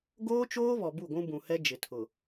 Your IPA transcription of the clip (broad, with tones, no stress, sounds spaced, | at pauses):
ɡ oː˦ t͡ʃ oː˦ β ɔ˨ b u˦˨ ɡʷ ũ˦ b ũ˨ h ɛ˦ d͡ʒ ɪ˨ tʰ ʊ˨